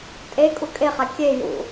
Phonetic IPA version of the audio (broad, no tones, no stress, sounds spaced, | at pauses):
tʼ e kʼ u kʼ e χ a kʲ e j ṵ